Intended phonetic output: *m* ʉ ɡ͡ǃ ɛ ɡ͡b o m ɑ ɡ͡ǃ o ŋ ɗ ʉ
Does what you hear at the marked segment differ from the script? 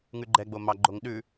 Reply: yes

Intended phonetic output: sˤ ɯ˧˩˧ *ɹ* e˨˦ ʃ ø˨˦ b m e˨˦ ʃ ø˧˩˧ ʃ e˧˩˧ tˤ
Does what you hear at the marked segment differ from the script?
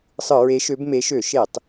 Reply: no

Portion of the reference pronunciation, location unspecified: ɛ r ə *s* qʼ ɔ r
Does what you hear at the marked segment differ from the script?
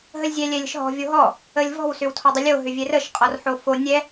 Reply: yes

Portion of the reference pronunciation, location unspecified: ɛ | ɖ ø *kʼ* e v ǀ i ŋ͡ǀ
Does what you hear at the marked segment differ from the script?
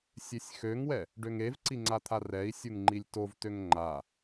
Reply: yes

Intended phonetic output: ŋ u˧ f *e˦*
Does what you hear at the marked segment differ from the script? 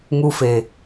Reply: yes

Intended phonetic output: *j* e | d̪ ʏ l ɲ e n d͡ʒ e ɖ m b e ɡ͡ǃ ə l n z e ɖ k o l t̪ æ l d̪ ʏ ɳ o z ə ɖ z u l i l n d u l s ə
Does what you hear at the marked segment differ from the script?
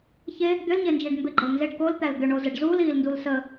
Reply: yes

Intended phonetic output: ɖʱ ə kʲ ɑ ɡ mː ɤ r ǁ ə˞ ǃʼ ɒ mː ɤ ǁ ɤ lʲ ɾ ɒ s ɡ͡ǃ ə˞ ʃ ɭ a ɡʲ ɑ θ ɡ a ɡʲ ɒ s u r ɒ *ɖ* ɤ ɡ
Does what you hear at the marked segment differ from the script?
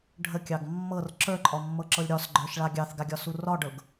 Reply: no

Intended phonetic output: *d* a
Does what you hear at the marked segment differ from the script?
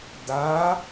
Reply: no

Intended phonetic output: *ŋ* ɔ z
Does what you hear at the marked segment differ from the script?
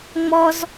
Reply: yes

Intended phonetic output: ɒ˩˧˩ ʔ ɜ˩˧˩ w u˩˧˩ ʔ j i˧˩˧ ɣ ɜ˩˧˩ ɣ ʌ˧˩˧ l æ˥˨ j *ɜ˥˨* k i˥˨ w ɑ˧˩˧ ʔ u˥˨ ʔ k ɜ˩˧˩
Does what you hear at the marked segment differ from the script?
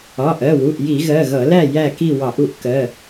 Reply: yes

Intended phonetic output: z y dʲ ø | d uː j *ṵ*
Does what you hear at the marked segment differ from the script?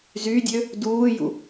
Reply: no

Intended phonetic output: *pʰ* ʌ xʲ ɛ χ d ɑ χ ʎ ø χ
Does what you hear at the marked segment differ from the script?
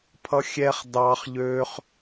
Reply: no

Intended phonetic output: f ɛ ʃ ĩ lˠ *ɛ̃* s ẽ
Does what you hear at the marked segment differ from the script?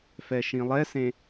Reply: yes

